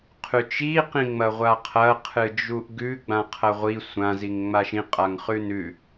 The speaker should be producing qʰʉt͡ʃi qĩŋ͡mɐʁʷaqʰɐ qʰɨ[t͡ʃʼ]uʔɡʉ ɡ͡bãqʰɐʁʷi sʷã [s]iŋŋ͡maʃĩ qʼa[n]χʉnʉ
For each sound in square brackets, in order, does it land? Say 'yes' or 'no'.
no, no, no

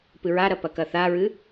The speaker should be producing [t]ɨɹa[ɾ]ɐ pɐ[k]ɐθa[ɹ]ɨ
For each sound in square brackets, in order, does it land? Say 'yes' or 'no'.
no, yes, yes, yes

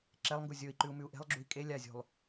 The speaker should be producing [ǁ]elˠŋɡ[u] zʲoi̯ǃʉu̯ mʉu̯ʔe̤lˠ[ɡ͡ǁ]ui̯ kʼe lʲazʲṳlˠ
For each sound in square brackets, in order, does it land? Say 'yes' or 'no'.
yes, yes, yes

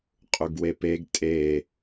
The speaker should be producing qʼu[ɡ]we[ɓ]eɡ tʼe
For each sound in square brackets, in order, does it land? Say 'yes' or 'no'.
yes, no

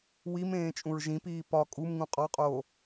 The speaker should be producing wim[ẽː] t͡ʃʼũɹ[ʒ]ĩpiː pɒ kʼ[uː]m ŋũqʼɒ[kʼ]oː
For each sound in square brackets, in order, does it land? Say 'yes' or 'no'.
yes, yes, no, no

